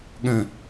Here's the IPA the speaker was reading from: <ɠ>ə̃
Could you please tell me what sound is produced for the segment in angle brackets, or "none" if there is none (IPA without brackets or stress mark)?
ɠ